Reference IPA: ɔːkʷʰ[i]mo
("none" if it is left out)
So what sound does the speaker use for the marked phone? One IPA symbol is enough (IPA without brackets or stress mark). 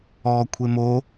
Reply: e